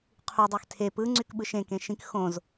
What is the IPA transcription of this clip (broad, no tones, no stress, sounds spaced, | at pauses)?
qʰ u dˤ ø x tʰ e p ɯ ŋ͡ǀ y k ɓ ɯ ʃ ẽ k ẽ ʃ ĩ k x õ z